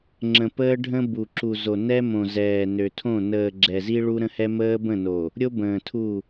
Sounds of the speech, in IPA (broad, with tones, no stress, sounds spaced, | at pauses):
ŋ͡ǁ ə̃˨ p əː˦ ɖʱ ə̃˦ b u˨ ǁ u˨ z o˨ n ɛ˦ m õ˨ z ɛː˨ n ø˨ tʰ õ˦˨ n əː˨ ɡ͡ǁ ɛ˨ z i˦ ɭ u˦ ɾ ə̃˦ h ɛ˦ m əː˦ b ə̃˦˨ n o˨ | ɾʲ o˦ b ə̃ː˨ tʰ u˦˨